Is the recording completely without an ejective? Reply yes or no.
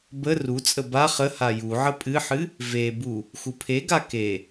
no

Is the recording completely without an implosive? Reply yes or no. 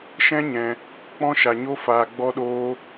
no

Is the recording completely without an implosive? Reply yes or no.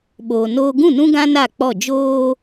no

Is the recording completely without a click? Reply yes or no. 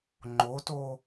no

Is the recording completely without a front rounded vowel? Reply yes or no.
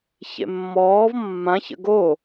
yes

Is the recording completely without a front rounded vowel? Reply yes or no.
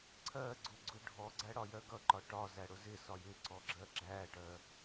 yes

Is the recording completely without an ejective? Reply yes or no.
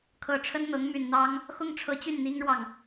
yes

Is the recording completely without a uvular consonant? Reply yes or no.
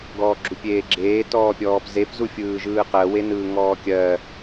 no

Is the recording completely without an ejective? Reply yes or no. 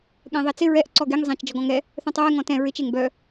yes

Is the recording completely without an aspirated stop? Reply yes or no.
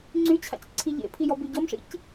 no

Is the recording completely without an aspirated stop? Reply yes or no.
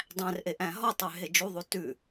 yes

